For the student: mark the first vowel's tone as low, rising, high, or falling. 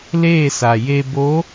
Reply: falling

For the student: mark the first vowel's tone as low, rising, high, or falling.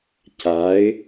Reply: rising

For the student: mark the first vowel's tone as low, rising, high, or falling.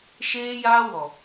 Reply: high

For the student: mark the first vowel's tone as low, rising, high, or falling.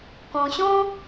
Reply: low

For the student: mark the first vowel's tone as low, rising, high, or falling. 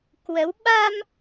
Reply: rising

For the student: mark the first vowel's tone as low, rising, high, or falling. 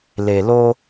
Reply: low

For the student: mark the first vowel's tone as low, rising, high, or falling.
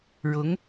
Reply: rising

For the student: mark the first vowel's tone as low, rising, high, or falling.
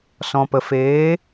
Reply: low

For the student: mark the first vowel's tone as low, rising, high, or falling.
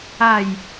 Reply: falling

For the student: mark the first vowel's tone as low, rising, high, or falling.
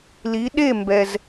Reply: rising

